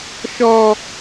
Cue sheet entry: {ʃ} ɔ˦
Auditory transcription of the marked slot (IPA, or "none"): ʃ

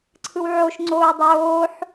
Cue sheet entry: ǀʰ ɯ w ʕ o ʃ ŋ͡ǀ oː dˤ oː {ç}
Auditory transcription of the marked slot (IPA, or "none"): ħ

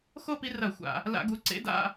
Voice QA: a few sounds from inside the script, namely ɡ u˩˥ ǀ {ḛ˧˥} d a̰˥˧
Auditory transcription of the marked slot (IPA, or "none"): ḛ˧˥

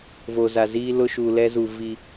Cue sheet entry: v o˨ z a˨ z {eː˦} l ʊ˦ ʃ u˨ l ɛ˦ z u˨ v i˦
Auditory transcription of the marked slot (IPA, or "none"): iː˦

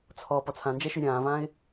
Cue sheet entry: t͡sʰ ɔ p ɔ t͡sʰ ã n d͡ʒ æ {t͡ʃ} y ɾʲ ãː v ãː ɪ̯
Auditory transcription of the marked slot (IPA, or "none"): ʃ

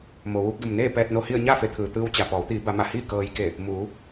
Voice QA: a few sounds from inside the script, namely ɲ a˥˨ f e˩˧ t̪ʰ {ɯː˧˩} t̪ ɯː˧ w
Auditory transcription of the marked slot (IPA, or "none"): ɯː˩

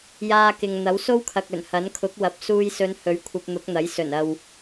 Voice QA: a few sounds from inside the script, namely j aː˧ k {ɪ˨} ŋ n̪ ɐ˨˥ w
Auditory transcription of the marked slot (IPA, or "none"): ɪ˨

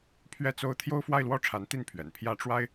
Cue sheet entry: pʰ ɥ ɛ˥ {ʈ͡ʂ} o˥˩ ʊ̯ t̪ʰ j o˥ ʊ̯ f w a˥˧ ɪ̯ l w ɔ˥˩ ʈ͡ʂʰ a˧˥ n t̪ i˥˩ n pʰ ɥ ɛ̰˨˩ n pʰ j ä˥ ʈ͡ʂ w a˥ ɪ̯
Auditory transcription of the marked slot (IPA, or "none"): t͡s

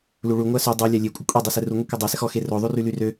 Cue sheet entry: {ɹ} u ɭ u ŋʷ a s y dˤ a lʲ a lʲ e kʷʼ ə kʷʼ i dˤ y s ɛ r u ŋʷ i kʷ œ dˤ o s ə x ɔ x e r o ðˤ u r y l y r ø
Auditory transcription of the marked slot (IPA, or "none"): l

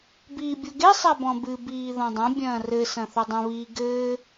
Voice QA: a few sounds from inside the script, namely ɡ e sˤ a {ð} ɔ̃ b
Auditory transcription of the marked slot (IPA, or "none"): b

